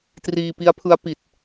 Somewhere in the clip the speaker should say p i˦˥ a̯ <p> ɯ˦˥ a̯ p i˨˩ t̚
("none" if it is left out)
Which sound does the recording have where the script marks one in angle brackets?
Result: pʰ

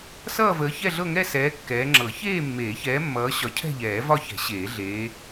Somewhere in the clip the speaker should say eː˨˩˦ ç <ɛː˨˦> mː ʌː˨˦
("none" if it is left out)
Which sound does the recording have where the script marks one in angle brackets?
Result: ɛː˨˦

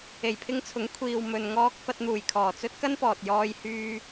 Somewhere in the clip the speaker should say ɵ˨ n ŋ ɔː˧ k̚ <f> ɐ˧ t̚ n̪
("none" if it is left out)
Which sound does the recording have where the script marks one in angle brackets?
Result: f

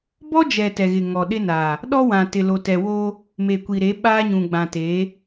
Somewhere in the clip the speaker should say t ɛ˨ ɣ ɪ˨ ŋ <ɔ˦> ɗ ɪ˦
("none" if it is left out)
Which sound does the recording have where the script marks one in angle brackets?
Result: ɔ˨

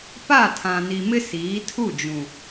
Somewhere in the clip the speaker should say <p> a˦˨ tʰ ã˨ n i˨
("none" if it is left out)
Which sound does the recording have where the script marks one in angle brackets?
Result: p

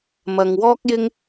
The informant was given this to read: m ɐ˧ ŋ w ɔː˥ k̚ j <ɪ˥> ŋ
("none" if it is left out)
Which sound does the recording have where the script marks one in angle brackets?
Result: ɪ˥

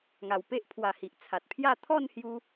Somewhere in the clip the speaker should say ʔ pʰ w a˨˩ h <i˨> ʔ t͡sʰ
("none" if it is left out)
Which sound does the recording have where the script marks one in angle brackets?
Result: i˨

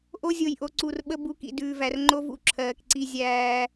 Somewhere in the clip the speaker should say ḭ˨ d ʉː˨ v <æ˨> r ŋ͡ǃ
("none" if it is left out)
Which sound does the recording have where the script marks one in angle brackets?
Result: æ˨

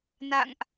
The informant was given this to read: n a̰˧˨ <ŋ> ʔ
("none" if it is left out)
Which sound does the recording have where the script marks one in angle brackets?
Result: ŋ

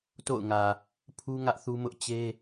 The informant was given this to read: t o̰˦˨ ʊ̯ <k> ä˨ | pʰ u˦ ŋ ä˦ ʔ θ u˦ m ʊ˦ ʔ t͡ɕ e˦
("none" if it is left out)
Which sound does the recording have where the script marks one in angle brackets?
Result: ŋ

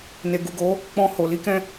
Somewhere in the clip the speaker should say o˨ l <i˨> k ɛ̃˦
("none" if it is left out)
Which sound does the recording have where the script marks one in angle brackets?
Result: i˨˦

